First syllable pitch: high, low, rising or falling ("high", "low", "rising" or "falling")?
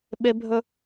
high